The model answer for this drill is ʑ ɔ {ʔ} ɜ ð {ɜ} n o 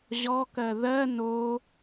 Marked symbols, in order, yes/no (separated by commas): no, yes